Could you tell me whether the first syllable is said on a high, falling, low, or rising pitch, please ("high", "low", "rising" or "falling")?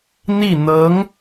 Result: falling